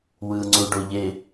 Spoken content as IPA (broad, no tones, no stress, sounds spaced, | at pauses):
w ɯ ŋ͡ǀ u ɖ o ʎ e